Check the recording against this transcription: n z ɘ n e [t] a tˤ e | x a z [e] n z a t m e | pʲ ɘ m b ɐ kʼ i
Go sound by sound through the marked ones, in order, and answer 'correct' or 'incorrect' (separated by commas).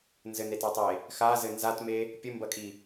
correct, incorrect